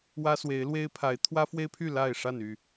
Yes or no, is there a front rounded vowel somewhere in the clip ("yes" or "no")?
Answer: yes